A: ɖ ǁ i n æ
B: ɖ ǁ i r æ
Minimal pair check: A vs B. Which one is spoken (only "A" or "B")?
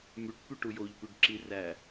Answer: B